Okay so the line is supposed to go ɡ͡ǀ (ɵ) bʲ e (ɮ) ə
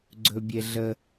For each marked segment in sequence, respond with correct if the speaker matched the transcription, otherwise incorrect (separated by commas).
correct, correct